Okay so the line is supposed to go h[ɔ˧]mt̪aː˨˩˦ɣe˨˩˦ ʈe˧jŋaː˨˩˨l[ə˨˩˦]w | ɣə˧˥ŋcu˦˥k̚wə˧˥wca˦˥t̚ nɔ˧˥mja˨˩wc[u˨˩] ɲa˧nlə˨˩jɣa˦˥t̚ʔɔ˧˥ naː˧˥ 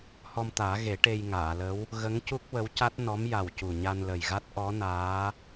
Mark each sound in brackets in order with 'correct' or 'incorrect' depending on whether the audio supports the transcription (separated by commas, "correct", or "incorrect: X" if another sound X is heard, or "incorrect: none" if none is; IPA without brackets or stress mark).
correct, incorrect: ə˧˥, correct